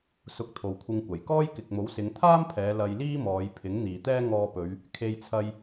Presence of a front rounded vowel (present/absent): absent